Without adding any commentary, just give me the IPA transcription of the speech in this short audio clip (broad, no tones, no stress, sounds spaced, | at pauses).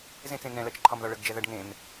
z ẽ t͡s ẽ n ɛ̃ l ɜ t͡ʃ ǃʰ ɒ m ð ɒ ɭ ə ɡ d͡ʒ ɛ ð ɜ ɖ ŋ ẽ m